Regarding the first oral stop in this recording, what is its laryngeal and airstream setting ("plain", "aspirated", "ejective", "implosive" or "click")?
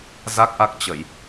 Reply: plain